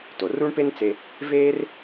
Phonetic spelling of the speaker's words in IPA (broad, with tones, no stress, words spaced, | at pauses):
to˩ru˥ɳpe˥nt͡se˧ | veː˥r